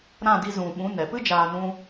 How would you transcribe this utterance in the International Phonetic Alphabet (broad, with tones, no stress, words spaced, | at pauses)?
ɾã˦˨di˧zũ˨ ɓũ˨˦ nɛ˨pɨ˦d͡ʒaː˧ nũ˦